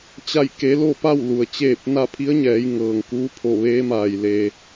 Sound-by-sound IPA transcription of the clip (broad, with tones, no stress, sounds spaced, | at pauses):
t͡ɕ a˥˨ j k e˧˥ l o˥˨ p a˥˨ w l u˩ ə̯ t͡ɕ eː˥˨ p̚ n a˥˨ pʰ i˧˥ ə̯ ɲ ɛː˩˧ j ŋ ɤː˩ ŋ k uː˧˥ pʰ o˧˩ ʋ eː˧˥ m aː˩ j l eː˧